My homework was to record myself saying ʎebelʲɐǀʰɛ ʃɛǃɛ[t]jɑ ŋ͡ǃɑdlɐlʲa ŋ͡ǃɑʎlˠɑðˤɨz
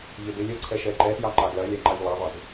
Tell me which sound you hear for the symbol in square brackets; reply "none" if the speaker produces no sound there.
t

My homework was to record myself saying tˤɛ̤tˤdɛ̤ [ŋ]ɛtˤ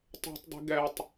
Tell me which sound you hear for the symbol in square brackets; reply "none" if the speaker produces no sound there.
ɡ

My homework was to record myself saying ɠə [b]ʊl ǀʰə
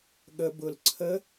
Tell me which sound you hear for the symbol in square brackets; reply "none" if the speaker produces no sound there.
b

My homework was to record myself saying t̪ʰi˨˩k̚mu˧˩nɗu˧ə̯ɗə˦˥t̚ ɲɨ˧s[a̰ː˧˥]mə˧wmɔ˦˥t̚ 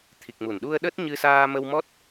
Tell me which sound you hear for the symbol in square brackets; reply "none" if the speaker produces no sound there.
aː˧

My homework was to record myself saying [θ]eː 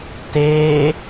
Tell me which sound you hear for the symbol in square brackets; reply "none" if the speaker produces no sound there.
t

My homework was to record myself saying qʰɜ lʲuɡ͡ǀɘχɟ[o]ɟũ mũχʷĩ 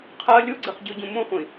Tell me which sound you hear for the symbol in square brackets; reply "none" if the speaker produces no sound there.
o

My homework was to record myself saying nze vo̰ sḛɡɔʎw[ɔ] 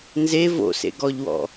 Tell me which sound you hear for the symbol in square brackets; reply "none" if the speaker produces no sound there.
ɔ̰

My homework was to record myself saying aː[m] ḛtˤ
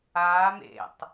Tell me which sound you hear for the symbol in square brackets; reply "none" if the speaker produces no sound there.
m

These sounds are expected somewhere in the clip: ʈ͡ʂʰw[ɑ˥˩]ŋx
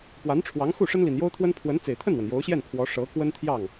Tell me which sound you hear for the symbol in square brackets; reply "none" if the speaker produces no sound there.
ɑ˧˥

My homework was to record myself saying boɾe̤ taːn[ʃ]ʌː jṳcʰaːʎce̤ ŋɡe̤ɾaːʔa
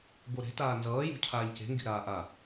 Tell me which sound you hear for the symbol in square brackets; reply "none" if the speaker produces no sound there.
z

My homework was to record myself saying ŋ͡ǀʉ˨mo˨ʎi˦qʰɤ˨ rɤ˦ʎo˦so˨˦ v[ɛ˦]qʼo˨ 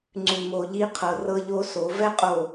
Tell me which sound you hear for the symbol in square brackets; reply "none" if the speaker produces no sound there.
ɛ˦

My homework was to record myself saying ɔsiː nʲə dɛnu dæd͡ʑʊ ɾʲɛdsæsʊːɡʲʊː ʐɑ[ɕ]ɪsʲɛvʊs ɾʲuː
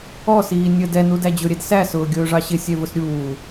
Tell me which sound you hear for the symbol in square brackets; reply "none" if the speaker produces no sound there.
ɕ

